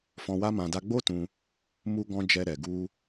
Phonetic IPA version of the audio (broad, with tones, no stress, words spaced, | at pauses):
fɔ̃˧wa˦mã˧ da˧ɡ͡bo˦tũ˧ | mu˧ɡɔ̃˧ d͡ʒɛ˧ɾɛ˨ ɡu˧